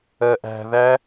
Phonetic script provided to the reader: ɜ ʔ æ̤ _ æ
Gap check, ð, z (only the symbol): ð